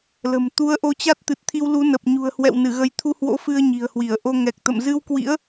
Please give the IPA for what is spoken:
l ə̤˨˩ m t̪ u˨˦ ə̯ ʔ o˨˦ t͡ɕ a˦˥ t̚ t̪ ɨ˨˩ t̚ t̪ʰ i˧ w l u˨˦ n ə˨˩ p̚ ɲ ṳ˨˩ ə̯ h w ɛ̰˧˨ w n ɨ˧˩ ɣ ə˨˦ j t̪ʰ u˧ h w o̰˧˥ f ɨ˧ ə̯ ɲ i̤˨˩ ə̯ h w i˧˩ ə̯ ʔ o˧ ŋ ɛ˨˩ k̚ t̪ ə̰˧˨ m z ɨ˧ w k w ḭ˧˥ ə̯

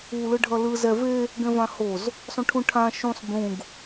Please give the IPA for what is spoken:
u l ɯ ɖʱ ʌ l ɯ z ɛ v e | ɡ ɛ̃ v ã h o z | sˤ õ ʈʰ ũ ʈʰ ã ʃ ũ sˤ b ũ ɡ

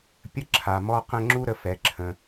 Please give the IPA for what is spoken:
pʲ ə˥ ǁʰ a˩ m ɔ˧ q ə̃˧ ŋ͡ǁ u˥ ɾ ə˩ f ɛ˩ ǁʰ ə̃˩

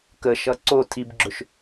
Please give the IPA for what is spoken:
k ə ʃ ʌ ǀ o tʰ i b ɡ͡ǁ ɵ ʃ

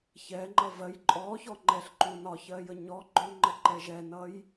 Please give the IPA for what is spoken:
ç ɛ ŋ͡ǃ ʌ v ɜ j ǃʼ ɔ ç ɔ ŋ͡ǃ ɛ ɬ ǃ u n ɒ ç ɜ j ə ɲ ɔ ɡ͡ǃ ʊ ŋ͡ǃ ə ǃ ɛ ʒ ɛ n ʌ j

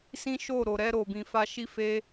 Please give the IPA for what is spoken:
s ĩ˦ ʃ o˦˨ ɾ o˨ ɾ ɛ˧ ɾ o˨ b ĩ˨ f a˧ ʃ i˦ f e˦

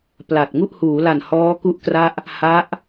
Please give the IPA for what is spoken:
p l a˨˩ t̚ ŋ u˥˩ ʔ h uː˩˦ l a˨˩ n h ɔː˦˥ k u˥˩ ʔ k r a˥˩ ʔ | h a˦˥ ʔ

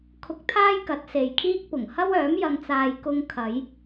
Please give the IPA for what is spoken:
kʰ ʊ˧ k̚ t̪ʰ aː˥ j k ɐ˨˥ t̚ s e˨ j kʰ iː˥ k̚ p ʊ˨˩ ŋ h ɐ˥ w œː˨˥ m j ɐ˧ ŋ t͡s aː˧ j k ʊ˧ ŋ kʰ ɐ˨˧ j

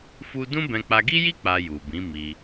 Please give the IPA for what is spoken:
f u˦ d ũ˦ b ɛ̃˧ k͡p a˧ ɡ i˦ j i˦ k͡p a˧ j u˨ b ĩ˨˦ m i˧

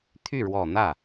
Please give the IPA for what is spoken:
t̪ʰ y˥˩ ɻ w ɔ˨˩ n̪ ä˥˩

